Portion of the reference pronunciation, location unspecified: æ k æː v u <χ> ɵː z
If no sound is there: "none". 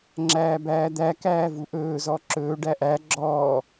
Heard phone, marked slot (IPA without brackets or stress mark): ʔ